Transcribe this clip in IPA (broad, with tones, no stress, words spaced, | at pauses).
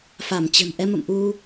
fa˧˩mt͡ɕə̤˨˩n ʔɛ˧mə̰˧˨m ʔu˧